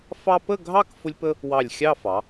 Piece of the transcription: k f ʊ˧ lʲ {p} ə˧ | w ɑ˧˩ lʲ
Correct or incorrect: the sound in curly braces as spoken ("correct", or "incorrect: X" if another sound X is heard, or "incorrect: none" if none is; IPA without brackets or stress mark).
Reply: correct